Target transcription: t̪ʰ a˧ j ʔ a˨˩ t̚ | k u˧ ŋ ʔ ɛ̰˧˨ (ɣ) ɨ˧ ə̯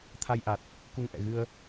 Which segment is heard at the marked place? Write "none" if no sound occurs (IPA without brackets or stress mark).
ɣ